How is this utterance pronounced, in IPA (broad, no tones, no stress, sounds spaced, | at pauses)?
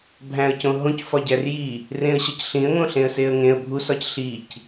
bʱ æ̃ ə̯ c õ ɦ õ c f ɒ ɟ æ r j i | r ẽ ə̯ ɕ ɒ c ɬ ĩ ə̯ ŋ õ ɬ ẽ ə̯ s e ə̯ ŋ ẽ ə̯ bʱ u s ɒ c ɬ i c